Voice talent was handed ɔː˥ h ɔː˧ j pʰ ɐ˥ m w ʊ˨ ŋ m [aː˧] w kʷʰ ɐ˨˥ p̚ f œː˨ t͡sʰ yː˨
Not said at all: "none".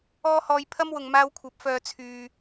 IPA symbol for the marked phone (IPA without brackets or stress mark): aː˧